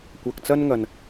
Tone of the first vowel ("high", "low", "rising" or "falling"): low